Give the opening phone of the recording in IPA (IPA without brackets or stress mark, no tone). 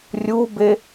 rʲ